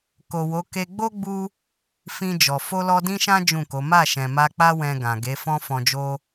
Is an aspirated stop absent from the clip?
yes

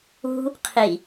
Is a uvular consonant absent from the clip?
no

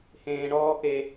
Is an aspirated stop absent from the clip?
yes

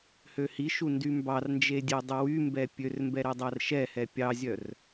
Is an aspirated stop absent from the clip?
yes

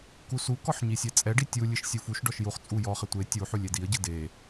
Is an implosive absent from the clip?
yes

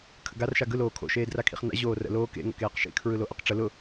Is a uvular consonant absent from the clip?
no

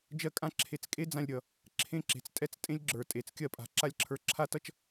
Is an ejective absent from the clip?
no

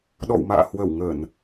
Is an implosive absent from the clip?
no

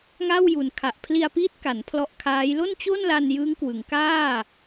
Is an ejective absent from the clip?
yes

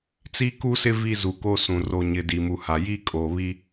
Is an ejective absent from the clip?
no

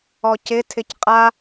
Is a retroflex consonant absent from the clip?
yes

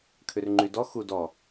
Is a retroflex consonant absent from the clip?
yes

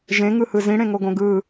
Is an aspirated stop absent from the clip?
yes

